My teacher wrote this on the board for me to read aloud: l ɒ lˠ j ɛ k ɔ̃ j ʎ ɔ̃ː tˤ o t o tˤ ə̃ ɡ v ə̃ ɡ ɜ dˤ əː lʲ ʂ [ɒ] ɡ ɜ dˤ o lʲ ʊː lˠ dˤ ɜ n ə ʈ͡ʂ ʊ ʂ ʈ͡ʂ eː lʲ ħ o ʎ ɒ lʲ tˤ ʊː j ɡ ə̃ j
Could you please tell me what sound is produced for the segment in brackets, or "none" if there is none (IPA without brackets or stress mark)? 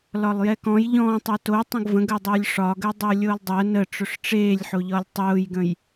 ɒ